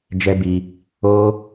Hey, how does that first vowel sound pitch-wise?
high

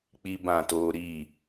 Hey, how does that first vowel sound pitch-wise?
high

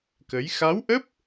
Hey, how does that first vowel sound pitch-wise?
rising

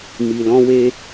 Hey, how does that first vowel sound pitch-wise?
low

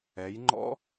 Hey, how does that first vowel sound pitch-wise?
rising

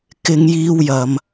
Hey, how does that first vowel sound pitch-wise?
high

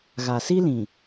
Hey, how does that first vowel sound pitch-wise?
low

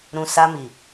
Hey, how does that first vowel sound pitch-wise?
low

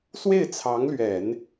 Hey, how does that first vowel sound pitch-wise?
falling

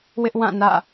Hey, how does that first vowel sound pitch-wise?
high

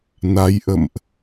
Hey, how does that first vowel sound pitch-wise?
rising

